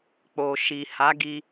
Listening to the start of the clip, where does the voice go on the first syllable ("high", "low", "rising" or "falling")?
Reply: low